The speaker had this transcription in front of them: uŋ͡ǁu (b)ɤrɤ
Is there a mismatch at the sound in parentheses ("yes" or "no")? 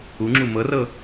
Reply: yes